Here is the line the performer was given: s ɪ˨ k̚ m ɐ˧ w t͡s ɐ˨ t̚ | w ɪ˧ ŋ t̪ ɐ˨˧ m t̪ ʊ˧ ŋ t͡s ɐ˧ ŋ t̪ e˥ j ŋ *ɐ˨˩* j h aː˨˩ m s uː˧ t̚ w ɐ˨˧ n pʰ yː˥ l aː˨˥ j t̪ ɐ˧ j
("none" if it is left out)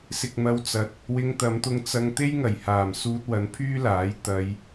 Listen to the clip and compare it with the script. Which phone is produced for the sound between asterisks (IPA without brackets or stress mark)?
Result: ɐ˨˩